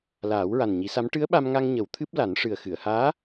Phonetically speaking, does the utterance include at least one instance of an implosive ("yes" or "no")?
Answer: yes